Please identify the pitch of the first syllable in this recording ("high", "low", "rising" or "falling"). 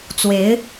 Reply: rising